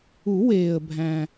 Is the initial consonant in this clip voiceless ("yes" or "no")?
no